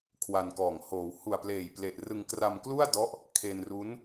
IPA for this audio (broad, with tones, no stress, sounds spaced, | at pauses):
kʰ w a˧ n k ɔː˨˩ ŋ h oː˩˦ w h u˨˩ a̯ p l eː˨˩ j p l e˨˩ ʔ r ɯ˧ ŋ k r a˧ m k l u˥˩ a̯ d ɔ˦˥ ʔ | kʰ e˧ n r u˦˥ n